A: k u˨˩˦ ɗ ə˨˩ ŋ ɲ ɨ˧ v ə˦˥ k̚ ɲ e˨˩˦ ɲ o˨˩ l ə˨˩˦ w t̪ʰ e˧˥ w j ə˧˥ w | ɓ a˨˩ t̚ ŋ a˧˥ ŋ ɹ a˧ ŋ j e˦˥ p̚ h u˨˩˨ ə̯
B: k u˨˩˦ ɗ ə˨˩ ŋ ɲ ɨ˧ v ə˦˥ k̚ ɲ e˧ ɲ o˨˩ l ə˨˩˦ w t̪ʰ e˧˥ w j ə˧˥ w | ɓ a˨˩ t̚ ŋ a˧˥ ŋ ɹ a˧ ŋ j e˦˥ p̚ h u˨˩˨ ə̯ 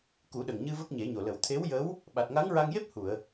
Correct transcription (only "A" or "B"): A